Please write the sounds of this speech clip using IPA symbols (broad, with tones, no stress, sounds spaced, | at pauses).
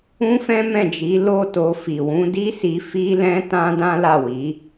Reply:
ũ˦ f ɛ̃˦ m ɛ̃˦˨ d͡ʒ i˨˦ l o˦˨ t o˧ f i˨ w ũ˨˦ d i˦ s i˧ f i˦ l ɛ̃˦ t ã˦ d ã˦ l a˦˨ w i˨˦